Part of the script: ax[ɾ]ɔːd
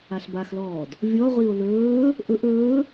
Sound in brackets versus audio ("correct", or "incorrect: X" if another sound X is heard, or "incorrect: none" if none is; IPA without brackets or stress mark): incorrect: l